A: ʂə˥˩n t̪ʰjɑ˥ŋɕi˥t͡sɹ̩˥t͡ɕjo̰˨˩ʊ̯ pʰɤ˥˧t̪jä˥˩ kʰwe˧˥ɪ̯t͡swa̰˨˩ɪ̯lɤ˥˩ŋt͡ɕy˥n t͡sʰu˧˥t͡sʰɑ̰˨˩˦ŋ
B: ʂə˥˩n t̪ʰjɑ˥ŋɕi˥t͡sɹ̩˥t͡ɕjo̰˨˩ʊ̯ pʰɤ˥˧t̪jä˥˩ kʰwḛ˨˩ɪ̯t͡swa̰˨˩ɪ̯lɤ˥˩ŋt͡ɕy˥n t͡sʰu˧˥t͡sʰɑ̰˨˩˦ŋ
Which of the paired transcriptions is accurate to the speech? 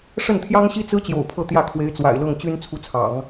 A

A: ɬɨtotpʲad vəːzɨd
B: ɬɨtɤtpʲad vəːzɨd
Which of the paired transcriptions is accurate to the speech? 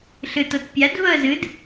B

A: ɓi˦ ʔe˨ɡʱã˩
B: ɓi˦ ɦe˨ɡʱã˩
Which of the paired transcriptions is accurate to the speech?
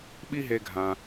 B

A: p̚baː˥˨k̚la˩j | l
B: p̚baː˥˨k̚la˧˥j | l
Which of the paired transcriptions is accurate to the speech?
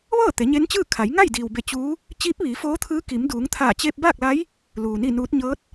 B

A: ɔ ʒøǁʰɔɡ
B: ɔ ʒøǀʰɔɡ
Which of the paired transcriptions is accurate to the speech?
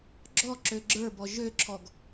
A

